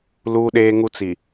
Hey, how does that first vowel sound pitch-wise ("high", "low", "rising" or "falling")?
high